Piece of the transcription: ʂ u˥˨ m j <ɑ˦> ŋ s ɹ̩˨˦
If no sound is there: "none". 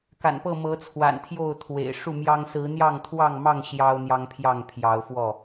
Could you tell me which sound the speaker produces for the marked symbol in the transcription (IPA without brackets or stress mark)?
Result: ɑ˦